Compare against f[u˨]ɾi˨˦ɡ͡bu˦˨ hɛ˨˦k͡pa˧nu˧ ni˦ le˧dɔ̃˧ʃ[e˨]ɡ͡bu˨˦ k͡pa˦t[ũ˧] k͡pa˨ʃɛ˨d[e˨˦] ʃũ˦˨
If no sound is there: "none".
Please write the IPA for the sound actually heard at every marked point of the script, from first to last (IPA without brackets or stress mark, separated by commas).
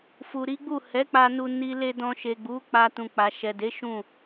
u˨, e˨, ũ˧, e˨˦